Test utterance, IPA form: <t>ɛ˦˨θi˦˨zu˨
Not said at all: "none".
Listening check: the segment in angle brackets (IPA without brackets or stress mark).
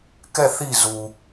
k